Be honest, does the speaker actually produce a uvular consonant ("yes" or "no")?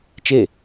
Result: no